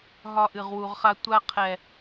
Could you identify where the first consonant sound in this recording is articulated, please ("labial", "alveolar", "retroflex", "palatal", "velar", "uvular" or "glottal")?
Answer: glottal